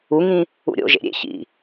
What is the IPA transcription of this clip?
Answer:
u ŋ ĩ | ṵ ɾʲ o̰ ʒ ḛ ɾʲ ḛ ç ḭ

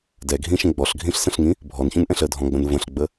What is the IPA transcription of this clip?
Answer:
d ɛ ɡʱ ĩ ʃ ə̃ ɡ͡b ɔ ɬ ɡʱ ĩ ɬ s ə̃ ɬ ŋ ĩ | bʱ ɔ n ç ũ n ʔ ɛ̃ ɬ ə dʱ ɔ̃ ɡ͡b ə̃ n v ə̃ ɬ ɡ͡b ə

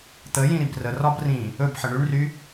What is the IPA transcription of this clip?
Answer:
t̪ ə j ĩ ɾ i b r ə r ɒ b r ĩ | ɵ b ħ ə ɳ y ɳ r y

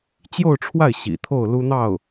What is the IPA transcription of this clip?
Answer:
t͡ɕ j o˥˧ ʊ̯ ʈ͡ʂʰ w a˥˩ ɪ̯ ɕ ḭ˨˩ t̪ʰ o˥˩ ʊ̯ l u˥ n̪ ɑ˥˩ ʊ̯

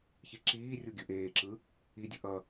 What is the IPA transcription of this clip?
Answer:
ç i ǁ iː rʲ u ɡʲ ɯ ʔ eː ǁ ɯ | i dʲ ɯ ʔ ʌ

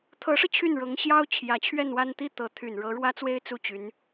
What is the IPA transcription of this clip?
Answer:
t̪ʰ ɤ˧˥ ʂ ɤ˧ t͡ɕʰ y˥˩ n ɻ ɤ˧˥ ŋ ɕ j ɑ˥ ʊ̯ t͡ɕʰ j ä˧˥ t͡ɕʰ ɥ ɛ˥˧ n w a˥˧ n t̪ i˥˩ t̪ ɤ˧˥ t̪ʰ y˨˩ n ɻ ɤ˧˥ ɻ w ä˥ t͡s w e˥ ɪ̯ t͡s u˥˩ t͡ɕ y˧˥ n

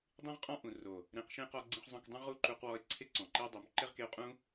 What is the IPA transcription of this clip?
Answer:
dˤ ĩ˦ ʁ qʼ ɔ̃˦ ʔ ũ˨ r o˨ | ɾ ẽ˧ q ʃ ẽ˦ q ɔ˦ ɡ͡ǀ ĩ˦ χ zˤ õ˦ k dˤ ũ˦ ʁ u˦ ǃ u˧ q w ɔ˧ e̯ ǀʰ ɪ˦ ǀ ɔ̃˨ ǃ i˦ e̯ dˤ o˨˦ m ǃ ɪ˦ ʁ k e˧ o̯ qʼ ũ˦

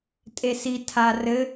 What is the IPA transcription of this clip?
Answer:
tʼ e s i tʰ a r ɘ

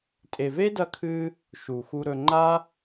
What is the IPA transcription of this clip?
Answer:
tʼ e˨ v e˦ d ɐ˧ kʰ ɨ˧ | ʃ u˨ x u˧ ɾ ɵ˧ ŋ͡ǃ a˦

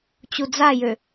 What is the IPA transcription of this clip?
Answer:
t͡ɕ u d͡z a j ø

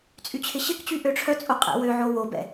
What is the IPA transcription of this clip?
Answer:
t͡sʼ y t͡ɕʰ ɪ ɕ ɪ k t͡ɕ y ʔ ø ʈ͡ʂʰ œ t͡sʼ o qʼ ɛ̰ w ø ʕ o w o b ɛ̰

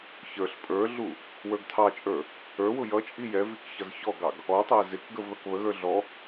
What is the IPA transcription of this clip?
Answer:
ç ə˞ ɬ pʼ ə˞ ɮ u | w ə˞ ɡ tʰ ɑ t͡ʃʼ ə˞ | ə˞ w ʊ j ʌ t͡ʃʼ i j ɛ v i k ç ʌ z ç ɔ ɡ ɑ ɡ | ɔ tˤ æ z ɪ k ɡ ə v ð ʌ k β ə ɣ ə˞ ɮ ɔ

